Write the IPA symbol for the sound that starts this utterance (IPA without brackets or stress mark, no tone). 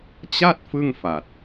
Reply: t͡ɕ